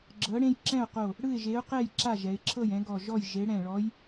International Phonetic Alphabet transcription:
ɡ͡ǁɤ˨˥ɽẽ˦j ǁɛ̃˥˨ʊ̯qo˧˩ | ɽɯ˥˨ɪ̯ʒe˨˥ʊ̯qɛ˥˨j ǁa˥˨ʒɛ˩˧ɪ̯ǁʰɤ˥˨j ɛ̃˨˥ɡɔ˧˩ ʒɔ˥˨j ʒe˨˥ ɽɛ̃˧˩ɭɔ˨˥j

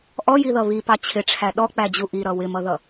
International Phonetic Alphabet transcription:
ʔɔjiðʌ βipɑ t͡ɕʰɪʈ͡ʂʰæ ɗɔk͡pæd͡ʑu ʔiɾʌ wɪmʌðʌ

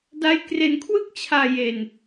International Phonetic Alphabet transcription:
da˦˥jkre˧nkʰwɯ˥˩k̚t͡ɕʰaː˧ je˧n

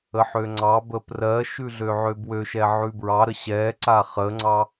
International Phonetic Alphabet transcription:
əħøŋ͡ǀɑ bəprɜʃʉ ɮøʕøbwøʃɛ ʕʉbɹɑɾə ɕɛ ǀaχəŋ͡ǀɑ

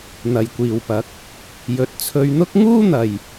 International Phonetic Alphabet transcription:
n̪ɐ˨jkʷiː˨wpɐ˨˥k̚ | jɵ˨t̚ t͡sʰɵ˧ɥn̪ʊ˥k̚ ŋuː˥n̪ɐ˨j

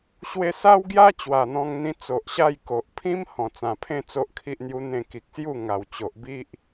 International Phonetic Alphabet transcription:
ɕwe˧sa˦wɡja˦ t͡ɕwa˨˩n̪ɔ̃˧ŋn̪ĩ˧ t͡so˨ʔɕa˥˧jko˨ʔ pʰĩ˦m hɔ̃˨˩t͡sã˨˩pʰẽ˥˧ t͡so˦ʔkʰi˦ʔn̪ju˦n̪ẽ˥˧ ki˨k̚sju˥˧ ŋa˨˩wt͡ɕo˨ʔbi˦ʔ

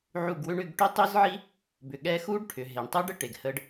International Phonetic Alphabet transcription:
ʕu˦˨ɡwʏ˦ɳ ʏ˧ɡ ʈʏ˦tˤʏ˦zʕi˦ | bʏ˨ɠɛ˧xu˦ɖʈʰʏ˨ ɦe˨ɳtˤʏ˦ɖə˦ ʈe˨ɡhə˧ɖ

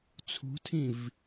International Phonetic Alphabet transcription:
t͡sʰṳtʰĩv

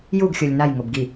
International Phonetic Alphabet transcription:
juɡ xʲolʲnaj ŋobɡi

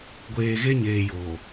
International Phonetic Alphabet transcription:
ɡʷeː˨ɣe˦ɲeː˨ joː˨

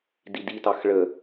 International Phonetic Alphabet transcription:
diditɑx ɭə

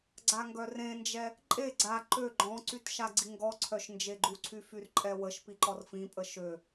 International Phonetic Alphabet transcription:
ɡ͡ǀaŋɡœrẽnd͡ʒɛ | ǃʼe ɡ͡ǀa ǃø ɡ͡ǃɔ̃ǀyt ʃaɡ͡ǀiŋɡɔǀʰœʃ nd͡ʒeɡ͡ǃuǀʰy fyrǃʼɛwəʃpi ǃɔrfĩpʼə ʃø

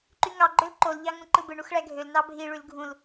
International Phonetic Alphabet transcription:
ǃyŋɑ ɡ͡ǃølǃol ʎɑŋũǃɯbɯ ɳuxɭæɡʱøl nɑbʱi ɭylɡʱũl

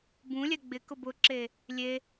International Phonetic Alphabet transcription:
bũlʲɛ ɡ͡bɪkʊ bʊǁe | lʲe

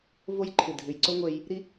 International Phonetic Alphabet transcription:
vo˦jǃʰɨ˨ dʱʉ˨jǀo˦ ŋʷe˦j | ɾi˦

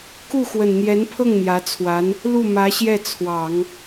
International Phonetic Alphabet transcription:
ku˥˩xwə˨˩nn̪jɛ˧˥npʰɤ˥˩ŋ n̪jä˧˥t͡sʰwa˧˥n | lu˥˩mä˧˥ ɕjɛ˥˩t͡sʰwɑ˨˩˦ŋ

